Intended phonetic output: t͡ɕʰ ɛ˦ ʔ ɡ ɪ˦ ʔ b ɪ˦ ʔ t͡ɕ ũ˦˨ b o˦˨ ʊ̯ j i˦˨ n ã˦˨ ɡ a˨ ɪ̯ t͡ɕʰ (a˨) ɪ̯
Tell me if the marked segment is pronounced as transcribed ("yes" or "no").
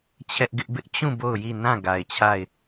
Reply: no